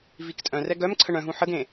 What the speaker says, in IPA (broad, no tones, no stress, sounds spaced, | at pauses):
v i k tʼ œ̃ r ɛ ɡ œ m ǀʰ ə ɳ œ̃ ɦ ũ ħ ə ɡ ẽ